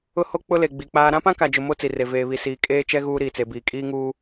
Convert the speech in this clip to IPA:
ʊ˦ h o˦ k͡p ʊ˦ l e˨ ɡ͡b i˨ k͡p aː˦ ɾ ã˦ p ã˦ k a˨ d͡ʒ ʊ˨ m o˦ t͡s i˨ r e˨ v eː˨ β i˨ s iː˨ kʼ eː˦ t͡ʃ ɛ˦ ɣ uː˦ ɾ iː˨ t͡s e˨ b iː˨ kʼ iː˦ ŋ uː˦

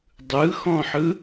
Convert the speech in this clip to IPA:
dˤ ɯ x ɔ̃ ħ ɯ

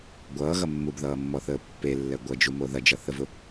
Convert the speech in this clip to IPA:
ɡʷ ʌː ɣ ʌ mː u b ð ʌː mː ɔ θ əː pː e lː ɛ ɡʷ ʌ d͡ʒ u m o ð ɐ d͡ʒ ʌ θ ə v ʊ

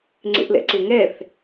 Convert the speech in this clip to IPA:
ŋ͡ǀ ḛ ʔ l ɛ̰ ǀ e ŋ ɛ θ

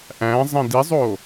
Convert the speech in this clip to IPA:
ʔ æ̃ zˤ ẽ d i zˤ oː

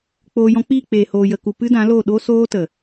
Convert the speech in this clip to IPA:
k͡p oː˧ j ɔ̃˦ k͡p iː˦˨ k͡p eː˨ h oː˨ j ə˨ k u˨ p ɨ˦ d ã˨˦ l o˦˨ ɗ o˦ s oː˦ t ə˨

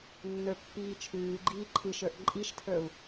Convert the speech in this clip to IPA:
nː ə˞ pː iː t͡ʃʰ ʉː ɡ͡ǃ iː ǃʰ ɨ ʃ ə˞ ʔ ǃʼ i ʃ tʰ ə˞ u̯

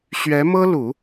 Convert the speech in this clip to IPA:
ɕ ɥ ɛ˧˥ m ɤ˥ l u˨˩˦

